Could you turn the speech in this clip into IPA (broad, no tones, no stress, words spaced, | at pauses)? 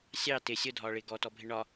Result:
sʲɑ tɪ sʲʊdʱɒːɭɪː ɡɔtɔbʱɪ ɳɒ